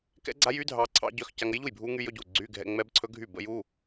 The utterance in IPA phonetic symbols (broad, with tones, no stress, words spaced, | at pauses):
kɛ̰˦˥ɡ͡ǀa˦˥jy˦˥dʱɑː˧ ǀʰɑ̰˦˥ɟœ˧˥˧x ca˧ŋə˦˥jʎu˥˩j bʱuː˦˥ŋy˦˥jɵ˧˥˧ɟuː˥˩ ɡ͡ǀyː˧˥˧ɡʱɛ̰˧˥˧ ŋ͡mɛ˦˥bǀʰɵ˦˥ɡʱy˥˩ bə̰˦˥ju˧˥˧